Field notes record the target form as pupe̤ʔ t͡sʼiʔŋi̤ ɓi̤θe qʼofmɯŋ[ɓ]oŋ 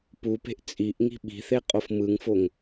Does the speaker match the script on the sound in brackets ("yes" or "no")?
no